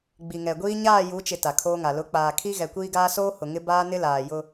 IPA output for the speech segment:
ɡ͡b i˨ ŋ ɛ˨ ɡʷ iː˦ ɲ aː˦˨ j u˨˦ t͡ʃ ɪ˨ t a˨ kʰ oː˦ ŋ a˨ l ʊ˨˦ k͡p aː˨ kʰ i˦ ɣ ɛ˨ kʷ iː˦ ɡ aː˦ s oː˦ h ʊ˨ ŋ ɪ˦ b aː˦ n ɪ˦ l aː˨ j ʊ˦

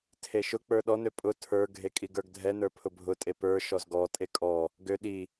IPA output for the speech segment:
tʰ e ʃ ʊ k͡p ə˞ ɗ ɔ n ø pʼ ʊ tʰ ə˞ ɡʱ e kʼ i ɡ ə˞ ɡ dʱ ɛ n ə˞ pʰ ʊ bʱ ʊ tʼ e p ə˞ ʃ ɔ z ɡ ɔ tʼ e kʼ ɔ | ɡ ø ɗ i

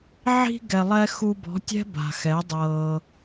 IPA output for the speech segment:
ʕ i̤˧ ɡ ɛ˨ lˠ ɛ˧ x u˧ b ɔ̤˨˦ tʲ ɛ̤˦ b a̤˨ x ɛ˨˦ dˤ ɤː˧

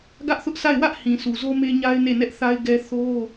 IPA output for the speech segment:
ɡ ä˦ ʔ θ ʊ˦ ʔ s a˦˨ ɪ̯ w ä˦ ʔ h ĩ˨ sʰ u˨ z o˦ m e˦ ɲ a˦ ɪ̯ n e˦˨ n ɛ˦ ʔ θ a˦ ɪ̯ ɡ ɛ˦ θ o˦

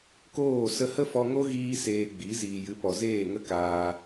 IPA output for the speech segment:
k oː˦˨ s ə˧ h ə˦ f ɔ˧ ŋ o˦ ɣ iː˦ s eː˧ ɡ͡b i˨˦ z iː˨ j ɨ˨˦ p ɔ˨ z eː˦˨ ŋ ə˦ k aː˧

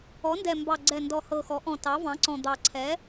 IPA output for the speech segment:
ɔ˩˥ n d ɛ˨˩ m b ɑ˨˩ ɡ͡ǀ ɛ˨˩ n d ɔ˨˩ h ɤ˨˩ x ɔ˩˥ ʔ ɔ̃˨˩ t ɑ˩˥ v ɑ̃˩˥ ǀ ɔ̃˨˩ d̪ ɑ˨˩ ǀʰ ɛ˩˥

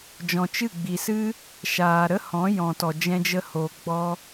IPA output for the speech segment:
d͡ʒ ɔ̃˨ t͡ʃ ɨ˦˨ ɡ͡b i˨ s ɨ˦ | ʃ aː˨ ɾ ə˦ h ɔ̃˨˦ j ɔ̃˨ t ɔ˨ d͡ʒ ɛ̃˧ d͡ʒ ə˧ h oː˨ ɡ͡b ɔ˧

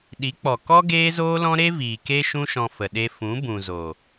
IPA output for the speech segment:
ɗ i˨˦ k͡p ɔ˨ k ɔ˦ ɡ eː˦ z oː˦ l ɔ̃˦ ɾ e˦ v iː˨ k e˦ ʃ ũ˦ ʃ ɔ̃˧ f ə˨ ɗ e˧ f ũ˨˦ b ũ˨ z o˨

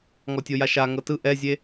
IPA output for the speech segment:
ŋ ɔ tʲ o j a ʃ a ŋ ɤ t ɯ ʔ ɛ zʲ e

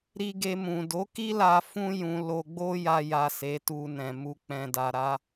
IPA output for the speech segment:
ɾ i˧ ɡ e˧ m ũ˨ d o˨˦ k i˦ l a˧ f ũ˦ j ũ˧ l o˧ ɡ͡b o˦ j a˧ j a˨ s e˨˦ t u˧ n ɛ̃˨ m u˨ k͡p ɛ̃˨ d a˨ ɾ a˨˦

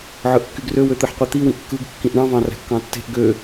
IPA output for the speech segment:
ʕ ɯ ʔ kː y ɡ r ø w ø t̪ ɯ ħ qʷ i t̪ i w ĩ ʔ kː ɯ ɡ kː ĩ ʔ ɳ ɑ̃ v ɑ̃ r æ̤ kː ɑ̃ tː e̤ ʔ ɡ ø

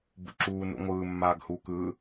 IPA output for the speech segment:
b ṵ ǁ uː n ṵ ŋʷ ɯː mː aː ɡ h u k ɯː

